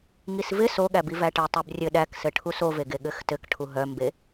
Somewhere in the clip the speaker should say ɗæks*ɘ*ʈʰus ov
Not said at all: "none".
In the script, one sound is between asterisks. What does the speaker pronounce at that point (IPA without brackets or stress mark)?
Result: ɘ